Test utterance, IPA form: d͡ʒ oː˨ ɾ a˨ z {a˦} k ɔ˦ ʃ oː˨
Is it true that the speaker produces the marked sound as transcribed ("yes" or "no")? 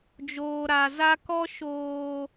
yes